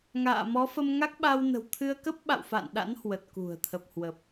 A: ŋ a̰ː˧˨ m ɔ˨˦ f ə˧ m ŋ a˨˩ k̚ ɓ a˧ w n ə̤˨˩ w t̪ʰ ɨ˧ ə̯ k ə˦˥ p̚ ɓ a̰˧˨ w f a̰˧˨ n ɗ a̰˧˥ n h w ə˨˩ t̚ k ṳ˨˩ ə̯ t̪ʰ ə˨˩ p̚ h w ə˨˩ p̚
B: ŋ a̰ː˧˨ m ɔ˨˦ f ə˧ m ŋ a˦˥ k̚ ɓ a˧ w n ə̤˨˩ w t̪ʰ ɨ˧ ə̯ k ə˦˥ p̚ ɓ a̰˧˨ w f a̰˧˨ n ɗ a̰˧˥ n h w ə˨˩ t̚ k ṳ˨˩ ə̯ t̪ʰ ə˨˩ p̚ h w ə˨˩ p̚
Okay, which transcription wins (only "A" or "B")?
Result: B